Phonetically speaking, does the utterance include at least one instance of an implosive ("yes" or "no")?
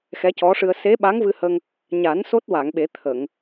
yes